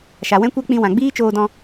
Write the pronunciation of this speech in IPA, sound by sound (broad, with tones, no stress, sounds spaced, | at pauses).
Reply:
ʃ a˨ w ɛ̃˦ kʷ ɛ˦ k͡p ĩ˧ w ã˨ ɡ͡b iː˦ t͡ʃ oː˧ d ɔ̃˧